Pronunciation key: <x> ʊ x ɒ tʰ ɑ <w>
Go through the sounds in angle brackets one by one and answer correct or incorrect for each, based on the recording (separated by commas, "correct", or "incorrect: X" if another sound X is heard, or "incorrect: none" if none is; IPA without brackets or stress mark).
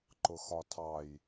incorrect: ǃ, incorrect: j